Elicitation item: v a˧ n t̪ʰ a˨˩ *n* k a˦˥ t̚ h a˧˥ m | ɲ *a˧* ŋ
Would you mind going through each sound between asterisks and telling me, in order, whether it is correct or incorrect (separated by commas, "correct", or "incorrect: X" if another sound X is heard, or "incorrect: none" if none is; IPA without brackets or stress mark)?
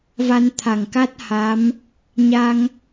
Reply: incorrect: ŋ, correct